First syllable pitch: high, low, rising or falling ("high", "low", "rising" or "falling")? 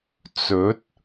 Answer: rising